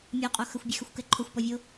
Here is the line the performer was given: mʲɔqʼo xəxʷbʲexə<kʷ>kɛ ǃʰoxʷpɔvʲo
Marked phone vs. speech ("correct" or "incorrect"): incorrect